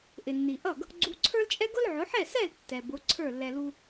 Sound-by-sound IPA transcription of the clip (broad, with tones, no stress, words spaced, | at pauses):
ʔɪ˩nːi˩ʔʌ˥˩ɡ | ɡ͡ǀu˧ǀʰə˞˥lt͡ʃʼɛ˥ ɡʊ˥lʕʊ˩˥ħɛ˥˩sɛ˥˩l tːɛ˩ bʊ˩˥ ǀʰə˞˥˩lːɛ˧lu˥